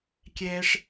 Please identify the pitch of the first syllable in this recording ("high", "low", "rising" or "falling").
high